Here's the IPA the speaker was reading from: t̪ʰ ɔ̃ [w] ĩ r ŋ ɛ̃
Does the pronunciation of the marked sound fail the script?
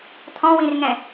no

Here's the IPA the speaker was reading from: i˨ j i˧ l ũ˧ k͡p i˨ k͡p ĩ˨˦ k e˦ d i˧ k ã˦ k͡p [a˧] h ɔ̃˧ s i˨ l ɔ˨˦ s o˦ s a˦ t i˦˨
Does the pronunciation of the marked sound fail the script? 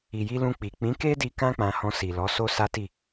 yes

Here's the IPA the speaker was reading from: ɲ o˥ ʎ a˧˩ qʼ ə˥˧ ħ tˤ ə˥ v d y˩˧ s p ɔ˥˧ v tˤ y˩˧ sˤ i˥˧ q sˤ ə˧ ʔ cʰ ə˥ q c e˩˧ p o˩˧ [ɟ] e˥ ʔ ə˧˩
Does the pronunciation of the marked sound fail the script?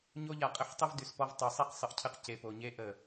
yes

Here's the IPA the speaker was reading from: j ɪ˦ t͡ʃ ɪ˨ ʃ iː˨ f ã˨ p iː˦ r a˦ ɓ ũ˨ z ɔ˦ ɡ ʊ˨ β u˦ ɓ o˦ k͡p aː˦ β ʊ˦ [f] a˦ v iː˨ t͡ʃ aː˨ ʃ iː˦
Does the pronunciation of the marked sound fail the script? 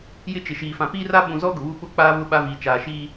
yes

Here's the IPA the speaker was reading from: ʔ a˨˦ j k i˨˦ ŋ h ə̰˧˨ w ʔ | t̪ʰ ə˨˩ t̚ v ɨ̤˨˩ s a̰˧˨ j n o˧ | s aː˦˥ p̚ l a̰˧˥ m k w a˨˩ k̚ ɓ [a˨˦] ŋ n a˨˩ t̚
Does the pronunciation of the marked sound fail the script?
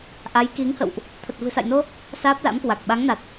no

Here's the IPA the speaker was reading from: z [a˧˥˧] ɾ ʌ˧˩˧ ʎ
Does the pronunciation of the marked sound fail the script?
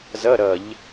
yes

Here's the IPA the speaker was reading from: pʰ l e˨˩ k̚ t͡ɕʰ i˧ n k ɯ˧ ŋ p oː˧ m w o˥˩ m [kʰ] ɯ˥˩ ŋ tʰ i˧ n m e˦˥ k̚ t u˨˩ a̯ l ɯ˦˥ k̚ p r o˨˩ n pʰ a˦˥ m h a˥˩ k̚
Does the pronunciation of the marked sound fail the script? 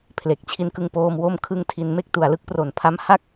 no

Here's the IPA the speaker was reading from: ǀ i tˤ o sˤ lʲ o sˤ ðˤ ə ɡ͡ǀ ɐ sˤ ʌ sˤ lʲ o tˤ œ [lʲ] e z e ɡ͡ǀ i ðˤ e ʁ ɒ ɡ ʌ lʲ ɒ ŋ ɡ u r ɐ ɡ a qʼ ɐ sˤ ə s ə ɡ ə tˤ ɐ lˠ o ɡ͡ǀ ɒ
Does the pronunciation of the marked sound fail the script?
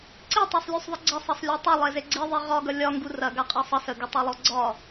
yes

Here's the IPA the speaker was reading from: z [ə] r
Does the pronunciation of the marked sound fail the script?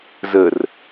no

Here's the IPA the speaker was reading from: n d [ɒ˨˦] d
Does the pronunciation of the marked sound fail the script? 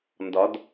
no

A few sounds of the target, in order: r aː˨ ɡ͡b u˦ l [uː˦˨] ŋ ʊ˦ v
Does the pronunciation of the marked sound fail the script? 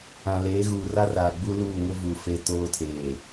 no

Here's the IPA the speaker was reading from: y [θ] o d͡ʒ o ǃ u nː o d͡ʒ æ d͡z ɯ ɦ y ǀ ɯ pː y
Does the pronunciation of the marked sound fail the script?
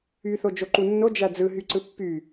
no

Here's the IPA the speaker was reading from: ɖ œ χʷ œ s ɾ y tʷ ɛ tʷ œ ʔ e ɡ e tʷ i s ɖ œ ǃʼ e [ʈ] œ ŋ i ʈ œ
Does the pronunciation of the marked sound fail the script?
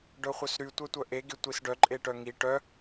no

